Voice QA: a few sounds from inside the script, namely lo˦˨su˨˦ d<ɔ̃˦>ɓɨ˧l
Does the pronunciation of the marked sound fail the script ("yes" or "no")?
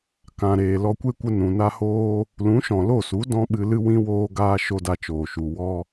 no